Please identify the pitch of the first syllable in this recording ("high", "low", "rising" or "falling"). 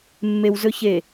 high